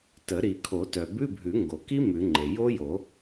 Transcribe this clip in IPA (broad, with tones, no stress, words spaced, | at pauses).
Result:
tə˨˩˦ ɾi˨˩˦kʰo˨˩˦ tœ˩bʉ˧˥˧bʱʉ˨˩˦ ŋɡo˩ki˦˥ mʉ˨˩˦ŋ͡ǃe˩ jo˦˥jo˨˩˦